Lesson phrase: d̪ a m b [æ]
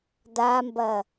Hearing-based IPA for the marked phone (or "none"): ɐ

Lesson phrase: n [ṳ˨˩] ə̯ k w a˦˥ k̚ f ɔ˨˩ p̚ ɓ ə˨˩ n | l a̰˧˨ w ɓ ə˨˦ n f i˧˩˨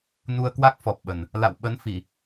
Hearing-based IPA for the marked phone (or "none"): u˧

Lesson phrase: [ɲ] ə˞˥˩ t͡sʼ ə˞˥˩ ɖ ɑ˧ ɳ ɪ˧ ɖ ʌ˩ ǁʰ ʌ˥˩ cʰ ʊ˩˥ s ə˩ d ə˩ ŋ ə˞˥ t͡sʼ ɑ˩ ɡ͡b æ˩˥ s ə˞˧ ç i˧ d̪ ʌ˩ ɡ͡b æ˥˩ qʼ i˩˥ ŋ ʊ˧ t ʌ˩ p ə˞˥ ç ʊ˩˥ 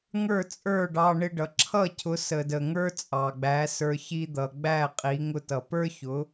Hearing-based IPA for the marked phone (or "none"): ŋ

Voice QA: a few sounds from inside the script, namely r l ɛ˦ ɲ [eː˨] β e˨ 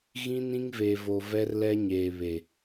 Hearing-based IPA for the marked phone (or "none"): eː˨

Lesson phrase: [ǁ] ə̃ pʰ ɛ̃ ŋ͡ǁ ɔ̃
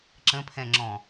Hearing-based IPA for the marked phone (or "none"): ǁ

